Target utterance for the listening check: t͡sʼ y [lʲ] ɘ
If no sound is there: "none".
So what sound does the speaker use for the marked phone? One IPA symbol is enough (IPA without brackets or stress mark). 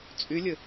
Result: lʲ